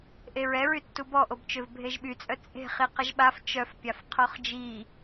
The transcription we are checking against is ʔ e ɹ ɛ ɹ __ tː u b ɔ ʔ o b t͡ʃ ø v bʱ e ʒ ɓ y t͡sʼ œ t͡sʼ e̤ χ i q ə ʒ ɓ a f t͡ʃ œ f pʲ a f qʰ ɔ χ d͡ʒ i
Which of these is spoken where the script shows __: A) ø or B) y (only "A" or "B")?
B